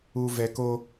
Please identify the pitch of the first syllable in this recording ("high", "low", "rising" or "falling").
low